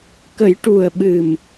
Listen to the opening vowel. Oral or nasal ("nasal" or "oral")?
oral